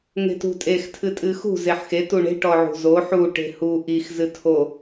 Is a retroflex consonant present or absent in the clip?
present